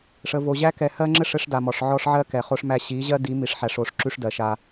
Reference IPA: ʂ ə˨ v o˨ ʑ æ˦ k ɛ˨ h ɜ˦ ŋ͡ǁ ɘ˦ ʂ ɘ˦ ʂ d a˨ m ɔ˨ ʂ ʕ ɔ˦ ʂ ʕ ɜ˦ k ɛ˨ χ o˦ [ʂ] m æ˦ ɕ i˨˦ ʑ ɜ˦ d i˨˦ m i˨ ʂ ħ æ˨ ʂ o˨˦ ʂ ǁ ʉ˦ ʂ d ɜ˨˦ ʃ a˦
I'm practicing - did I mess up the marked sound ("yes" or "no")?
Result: no